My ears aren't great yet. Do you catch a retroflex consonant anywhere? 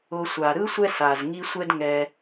no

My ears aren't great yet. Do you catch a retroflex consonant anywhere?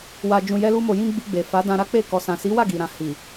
no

